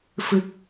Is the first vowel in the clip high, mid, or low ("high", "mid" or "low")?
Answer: high